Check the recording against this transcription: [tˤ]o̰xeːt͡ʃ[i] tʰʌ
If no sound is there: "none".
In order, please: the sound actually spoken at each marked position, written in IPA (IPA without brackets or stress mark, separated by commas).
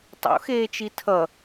tˤ, i